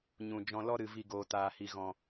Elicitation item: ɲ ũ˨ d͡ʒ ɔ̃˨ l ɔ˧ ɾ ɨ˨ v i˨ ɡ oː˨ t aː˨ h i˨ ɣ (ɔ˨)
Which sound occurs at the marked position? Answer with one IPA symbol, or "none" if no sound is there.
ɔ̃˨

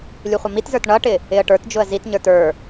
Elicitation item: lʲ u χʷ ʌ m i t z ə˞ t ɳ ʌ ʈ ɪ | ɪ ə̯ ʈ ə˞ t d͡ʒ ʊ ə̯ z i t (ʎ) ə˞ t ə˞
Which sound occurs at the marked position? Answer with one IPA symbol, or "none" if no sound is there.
ɲ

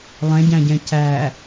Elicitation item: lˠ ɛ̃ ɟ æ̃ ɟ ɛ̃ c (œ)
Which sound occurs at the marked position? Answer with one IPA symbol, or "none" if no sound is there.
æ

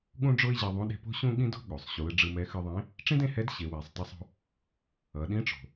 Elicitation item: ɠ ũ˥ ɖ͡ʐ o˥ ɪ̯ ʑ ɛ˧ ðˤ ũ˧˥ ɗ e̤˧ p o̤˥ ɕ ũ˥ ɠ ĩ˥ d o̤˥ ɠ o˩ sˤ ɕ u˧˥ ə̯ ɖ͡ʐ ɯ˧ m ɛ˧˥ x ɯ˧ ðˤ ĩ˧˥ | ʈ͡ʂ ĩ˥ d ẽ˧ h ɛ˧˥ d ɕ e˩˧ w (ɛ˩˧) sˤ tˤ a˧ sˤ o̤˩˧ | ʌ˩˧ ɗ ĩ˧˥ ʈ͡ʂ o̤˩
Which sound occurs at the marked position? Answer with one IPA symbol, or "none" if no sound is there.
ɛ˩˧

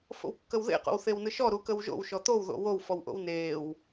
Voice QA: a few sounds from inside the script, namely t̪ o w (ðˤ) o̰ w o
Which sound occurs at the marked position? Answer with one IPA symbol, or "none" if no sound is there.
ð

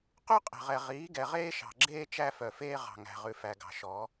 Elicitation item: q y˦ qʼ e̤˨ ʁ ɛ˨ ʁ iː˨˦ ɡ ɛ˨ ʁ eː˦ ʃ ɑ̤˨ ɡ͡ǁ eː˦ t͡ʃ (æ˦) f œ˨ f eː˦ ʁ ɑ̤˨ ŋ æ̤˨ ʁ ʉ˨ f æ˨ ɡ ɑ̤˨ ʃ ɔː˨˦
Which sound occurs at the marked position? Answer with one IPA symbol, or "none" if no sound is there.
æ˦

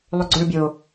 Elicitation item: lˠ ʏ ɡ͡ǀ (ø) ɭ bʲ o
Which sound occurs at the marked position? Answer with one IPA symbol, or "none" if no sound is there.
ø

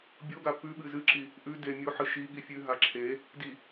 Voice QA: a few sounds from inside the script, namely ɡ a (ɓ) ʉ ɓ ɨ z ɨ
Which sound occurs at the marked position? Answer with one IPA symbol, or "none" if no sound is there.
p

